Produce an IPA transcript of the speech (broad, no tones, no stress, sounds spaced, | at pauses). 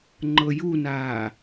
ŋ͡ǃ ɤ j u n aː